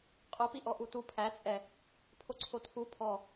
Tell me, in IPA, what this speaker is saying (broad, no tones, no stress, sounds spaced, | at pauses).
qʼ o p i ʔ ɔ ʔ u t u pʰ æ t͡sʼ ɛ | pʰ o ǀʰ o tʰ u pʰ ɔ